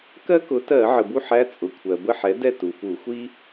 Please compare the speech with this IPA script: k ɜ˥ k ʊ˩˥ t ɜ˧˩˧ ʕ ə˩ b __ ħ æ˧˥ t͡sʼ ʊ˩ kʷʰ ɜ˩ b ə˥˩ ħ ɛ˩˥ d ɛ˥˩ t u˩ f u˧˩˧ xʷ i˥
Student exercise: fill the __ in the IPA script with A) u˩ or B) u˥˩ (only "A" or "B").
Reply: B